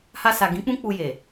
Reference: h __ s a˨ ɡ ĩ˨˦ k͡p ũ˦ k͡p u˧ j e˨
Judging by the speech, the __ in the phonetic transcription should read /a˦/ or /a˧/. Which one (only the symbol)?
a˧